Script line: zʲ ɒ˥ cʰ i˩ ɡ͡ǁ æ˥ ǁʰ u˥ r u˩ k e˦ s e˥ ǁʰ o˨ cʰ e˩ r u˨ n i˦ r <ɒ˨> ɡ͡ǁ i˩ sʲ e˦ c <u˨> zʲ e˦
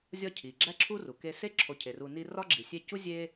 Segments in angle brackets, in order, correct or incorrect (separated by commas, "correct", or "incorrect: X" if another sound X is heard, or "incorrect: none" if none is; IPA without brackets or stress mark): incorrect: ɒ˥, incorrect: u˥